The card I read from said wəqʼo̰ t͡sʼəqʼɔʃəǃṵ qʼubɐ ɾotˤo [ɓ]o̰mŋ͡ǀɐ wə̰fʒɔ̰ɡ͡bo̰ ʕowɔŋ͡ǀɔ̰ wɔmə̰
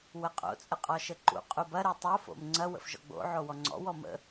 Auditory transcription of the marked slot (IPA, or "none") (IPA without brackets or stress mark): f